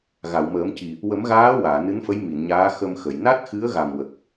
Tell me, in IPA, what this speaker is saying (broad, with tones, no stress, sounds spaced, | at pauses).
ɣ a˨˩˨ w m əː˨˩˦ m c i˨˩ | w ə˨˩˦ m ɣ aː˧˥ w aː˨˩˨ n ɨ˧˥ n f ə˧˥ j m i˨˩˨ n ɲ aː˧˥ x ə˧ m x ə˨˩˨ j n a˦˥ t̚ x ɨ˧˥ ə̯ ɣ a˨˩ m w ə˨˩ k̚